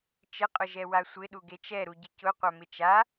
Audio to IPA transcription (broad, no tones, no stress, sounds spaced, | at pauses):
t͡ʃ ɪ qʼ ʊ ʒ ɛ w a sʷ ɪ ɗ u ɡ e t͡ʃ ɛ ɾ u ɟ ɪ c ʊ qʷ a m ɪ t͡ʃ a